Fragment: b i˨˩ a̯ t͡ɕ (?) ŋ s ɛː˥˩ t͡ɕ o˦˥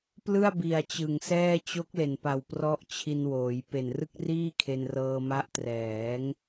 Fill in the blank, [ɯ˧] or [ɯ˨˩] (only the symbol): ɯ˨˩